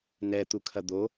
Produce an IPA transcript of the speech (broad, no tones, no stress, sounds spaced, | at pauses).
n ɛ t̪ u kʰ ɐ d̪ o